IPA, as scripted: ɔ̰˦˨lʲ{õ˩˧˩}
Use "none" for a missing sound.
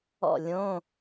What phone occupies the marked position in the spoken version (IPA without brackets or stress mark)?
õ˧˥˧